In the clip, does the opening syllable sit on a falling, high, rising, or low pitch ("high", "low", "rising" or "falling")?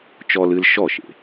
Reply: high